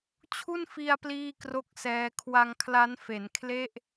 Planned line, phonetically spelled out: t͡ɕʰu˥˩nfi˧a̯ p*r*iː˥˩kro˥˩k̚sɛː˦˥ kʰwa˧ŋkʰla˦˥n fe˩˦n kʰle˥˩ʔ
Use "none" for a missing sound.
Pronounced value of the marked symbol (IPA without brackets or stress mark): l